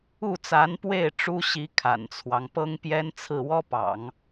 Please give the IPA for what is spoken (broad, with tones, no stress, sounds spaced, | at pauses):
u˥˩ t͡s a˧˥ n p w e˥˩ ɪ̯ ʈ͡ʂ u˥ ɕ i˧˥ kʰ a̰˨˩ n t͡sʰ w ɑ˦ ŋ p ɤ˥ ŋ p j ɛ˥ n t͡sʰ ɹ̩˥˩ w ɔ˥ p ɑ̰˨˩˦ ŋ